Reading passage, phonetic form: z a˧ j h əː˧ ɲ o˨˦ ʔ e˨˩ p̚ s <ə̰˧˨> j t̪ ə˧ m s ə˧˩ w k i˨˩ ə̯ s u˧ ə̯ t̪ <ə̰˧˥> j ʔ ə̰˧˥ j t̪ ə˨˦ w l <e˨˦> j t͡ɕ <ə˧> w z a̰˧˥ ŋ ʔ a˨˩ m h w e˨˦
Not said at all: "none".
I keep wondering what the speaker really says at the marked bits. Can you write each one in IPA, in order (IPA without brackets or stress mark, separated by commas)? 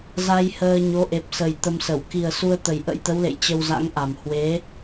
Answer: ə˨˩, ə˨˩, ḛ˧˨, ə˧